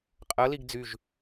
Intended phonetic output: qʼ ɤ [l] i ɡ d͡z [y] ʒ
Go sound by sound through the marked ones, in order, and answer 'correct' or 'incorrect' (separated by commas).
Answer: correct, correct